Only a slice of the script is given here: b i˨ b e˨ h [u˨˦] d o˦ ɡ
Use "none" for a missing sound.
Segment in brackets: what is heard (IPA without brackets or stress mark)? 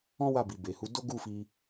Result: u˨˦